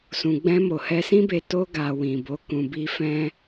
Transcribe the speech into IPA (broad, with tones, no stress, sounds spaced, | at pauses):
s ũ˨ ɡ͡b ɛ̃˧ m o˨ h ɛ˧ s ĩ˦ b e˧ t o˧ ɡ a˨ w ĩ˨ b o˨˦ k ũ˧ b i˦ f ɛ̃˦